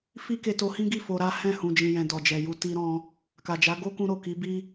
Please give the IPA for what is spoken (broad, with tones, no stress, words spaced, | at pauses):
fi˦ ke˧to˧hĩ˦ɡi˦˨ fo˧ɾa˦ hɛ̃˦˨ hũ˨d͡ʒĩ˨jɛ̃˨ dɔ˨d͡ʒɛ˨ju˧ ti˧ɾɔ̃˧ | ka˨d͡ʒa˨˦ ɡo˦kũ˧ɾo˨ ki˨˦bi˦